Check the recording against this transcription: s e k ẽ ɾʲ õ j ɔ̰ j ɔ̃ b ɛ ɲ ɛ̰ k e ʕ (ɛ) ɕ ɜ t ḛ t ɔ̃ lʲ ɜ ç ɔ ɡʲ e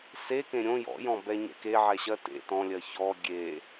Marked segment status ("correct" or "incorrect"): correct